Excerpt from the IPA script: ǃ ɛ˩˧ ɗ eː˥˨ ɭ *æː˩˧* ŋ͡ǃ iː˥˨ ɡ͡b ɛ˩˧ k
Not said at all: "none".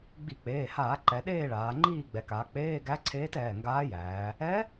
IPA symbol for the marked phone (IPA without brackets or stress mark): aː˩˧